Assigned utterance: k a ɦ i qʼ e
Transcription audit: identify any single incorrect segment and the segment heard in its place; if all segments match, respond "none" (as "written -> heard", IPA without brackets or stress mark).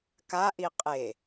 ɦ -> ʔ